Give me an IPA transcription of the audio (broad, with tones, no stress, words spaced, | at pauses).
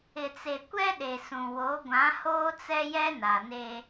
ɪ˨t͡se˨kʷɛ˦ ɗe˨sũ˨ wo˨˦ɡʷã˨˦hoː˦t͡sɛ˦ jɛ˦na˨ne˦